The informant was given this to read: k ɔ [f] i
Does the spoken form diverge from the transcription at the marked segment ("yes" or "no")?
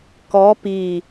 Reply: yes